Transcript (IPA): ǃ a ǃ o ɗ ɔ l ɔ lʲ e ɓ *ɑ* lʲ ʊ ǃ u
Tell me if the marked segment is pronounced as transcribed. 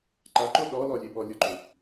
no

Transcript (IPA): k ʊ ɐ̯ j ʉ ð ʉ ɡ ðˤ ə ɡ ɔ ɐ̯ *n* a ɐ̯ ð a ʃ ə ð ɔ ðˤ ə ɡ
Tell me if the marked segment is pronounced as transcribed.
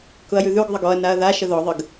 yes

